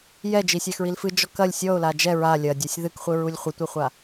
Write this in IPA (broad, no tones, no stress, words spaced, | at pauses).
jɛ d͡ʒisʲaxɹilfɨ d͡ʒɔkɐlʲ sʲɔʊ̯la d͡ʒɛ ɹa lʲɐdʲasʲ ðɨkχʷɨɹulʲ χʷɨtʷɨχʷa